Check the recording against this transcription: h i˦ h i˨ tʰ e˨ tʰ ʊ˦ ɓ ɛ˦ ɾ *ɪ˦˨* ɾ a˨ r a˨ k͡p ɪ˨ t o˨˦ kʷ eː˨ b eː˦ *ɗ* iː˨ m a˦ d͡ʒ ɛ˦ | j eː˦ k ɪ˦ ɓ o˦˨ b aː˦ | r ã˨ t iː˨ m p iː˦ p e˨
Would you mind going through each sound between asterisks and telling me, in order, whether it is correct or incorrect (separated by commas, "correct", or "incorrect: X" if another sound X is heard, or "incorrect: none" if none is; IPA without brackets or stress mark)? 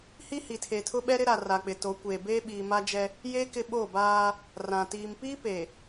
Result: incorrect: ɪ˦, incorrect: ɓ